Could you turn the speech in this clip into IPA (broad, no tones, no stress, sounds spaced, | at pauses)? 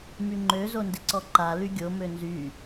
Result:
m y ŋ͡ǃ ø z o n d ɪ ǀ ɔ ǃ a l y ɡʲ o m ø n z y